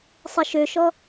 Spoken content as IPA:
sˤ ɪ ʃ ø ʃ ɔ

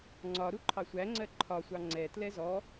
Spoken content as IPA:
ŋ͡ǀ ɒ ɾ u ǃʰ ɑ sʷ æ ŋ͡ǀ ɜ ǃʰ ɒ sʷ ɑ ŋ͡ǀ ɛ t l ɛ z ɔ

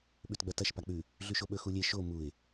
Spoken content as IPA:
ɓ ʉ t ɡ͡b ɐ t ɐ ʃ p a k͡p ʉ | ɮ ʉ ʃ o ɓ ɵ x u lʲ e ʃ o m u ɪ̯

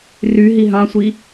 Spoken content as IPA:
r y ɦ i ɦ ɑ̃ sʷ i

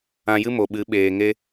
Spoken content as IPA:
ã˧ j ɨ˦ m o˨ ɓ ɨ˨˦ ɓ eː˨ ŋ e˦

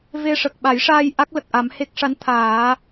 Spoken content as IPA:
v e˧ ʂ ə˨˩ k̚ ɓ a˨˩˦ j ʂ aː˧ j ʔ a˦˥ k̚ l ə˨˩ k̚ ʔ a˨˩˦ m h e˦˥ k̚ ʂ a˧˥ n t̪ʰ aː˨˩˦

